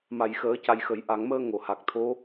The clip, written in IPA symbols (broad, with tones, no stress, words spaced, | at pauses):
ma˨˩˨jxəː˨˩˦ ca˨˩jxə˨˩˨j ʔa˨˩˨ŋməː˧ ŋo˨˩˨ha˨˩k̚t̪ʰo˧˥